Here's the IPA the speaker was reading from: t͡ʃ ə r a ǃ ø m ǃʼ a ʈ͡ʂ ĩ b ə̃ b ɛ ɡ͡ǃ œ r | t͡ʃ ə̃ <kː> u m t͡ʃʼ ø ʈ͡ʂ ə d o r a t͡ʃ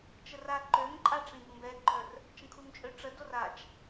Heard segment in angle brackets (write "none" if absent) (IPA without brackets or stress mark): kʰ